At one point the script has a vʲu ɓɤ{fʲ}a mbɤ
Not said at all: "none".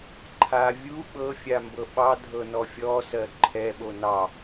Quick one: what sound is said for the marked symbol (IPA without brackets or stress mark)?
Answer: fʲ